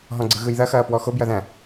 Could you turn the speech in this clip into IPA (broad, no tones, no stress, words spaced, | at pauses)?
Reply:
ɦɔ̃ɡ͡ǀɯɣɯjðɐ xɐːpwɔxo bjɐðæ̃